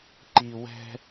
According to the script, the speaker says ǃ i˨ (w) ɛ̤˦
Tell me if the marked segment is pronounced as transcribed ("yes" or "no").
yes